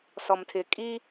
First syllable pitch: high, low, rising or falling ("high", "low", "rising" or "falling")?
low